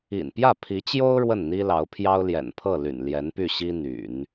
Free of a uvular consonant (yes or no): yes